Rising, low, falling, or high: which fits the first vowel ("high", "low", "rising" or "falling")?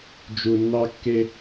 low